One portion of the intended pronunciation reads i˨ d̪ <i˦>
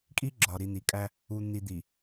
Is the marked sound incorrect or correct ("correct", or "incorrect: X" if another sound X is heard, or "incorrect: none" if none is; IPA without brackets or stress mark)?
incorrect: i˨